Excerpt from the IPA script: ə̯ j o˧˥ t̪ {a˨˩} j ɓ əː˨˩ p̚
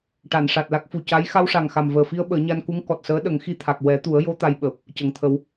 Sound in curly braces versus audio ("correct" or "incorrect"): incorrect